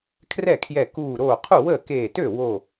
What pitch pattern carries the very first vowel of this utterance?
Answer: falling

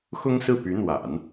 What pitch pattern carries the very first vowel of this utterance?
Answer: high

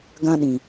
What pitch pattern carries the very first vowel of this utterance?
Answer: high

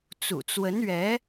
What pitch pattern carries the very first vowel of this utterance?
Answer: low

